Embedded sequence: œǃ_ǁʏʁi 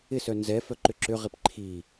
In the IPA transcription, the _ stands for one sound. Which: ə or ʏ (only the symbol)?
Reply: ʏ